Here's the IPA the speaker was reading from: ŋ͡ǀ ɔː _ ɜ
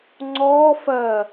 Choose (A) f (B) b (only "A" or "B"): A